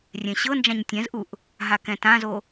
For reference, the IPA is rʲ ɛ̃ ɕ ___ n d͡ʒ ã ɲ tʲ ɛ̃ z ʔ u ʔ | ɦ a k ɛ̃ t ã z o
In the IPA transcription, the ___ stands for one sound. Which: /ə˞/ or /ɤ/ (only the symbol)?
ɤ